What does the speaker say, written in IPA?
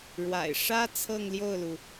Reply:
ɻ w a̰˨˩ ɪ̯ ʂ ä˥ t͡sʰ ɤ˥˧ ŋ l j o˥˩ ʊ̯ l u˩

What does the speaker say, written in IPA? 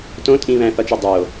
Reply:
t õ tʼ ĩ β æ̃ θ ɒ t͡ʃ ɒ dˤ o

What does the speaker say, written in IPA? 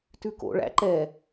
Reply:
t ʉ k o̰ ɭ æ̰ ǃ ɛ

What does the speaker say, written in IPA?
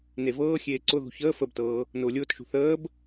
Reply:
n e v ɤː xʲ eː ǀ ʊ ð ṳ ç əː f ə b t ɤː | n ʊː lʲ ʊː t ʃ ṳ θ əː b

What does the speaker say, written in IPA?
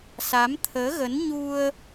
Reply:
s a˨˦ m t̪ʰ əː˨˦ ɣ ə˨˦ n ɲ u˧ ə̯

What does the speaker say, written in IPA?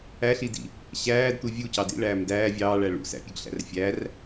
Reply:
æ ɬ i d ḭ | ɕ æː d t̪ u vʲ u c ɑ d ḭ ɭ æː m d æː vʲ ɑː ɭ æ ɭ ṵ s æ̰ pʲ ʉ ɡ ɬ æ̰ r fʲ æ r

